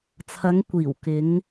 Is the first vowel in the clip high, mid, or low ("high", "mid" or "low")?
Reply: low